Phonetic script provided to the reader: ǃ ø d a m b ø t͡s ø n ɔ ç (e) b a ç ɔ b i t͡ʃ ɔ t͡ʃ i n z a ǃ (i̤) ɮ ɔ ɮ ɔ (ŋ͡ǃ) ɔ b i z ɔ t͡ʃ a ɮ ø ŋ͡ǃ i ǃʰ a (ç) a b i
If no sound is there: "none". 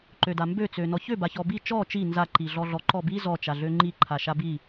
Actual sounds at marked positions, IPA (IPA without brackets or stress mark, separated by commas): ø, i, ǃ, ʃ